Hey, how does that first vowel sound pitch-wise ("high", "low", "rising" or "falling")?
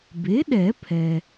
rising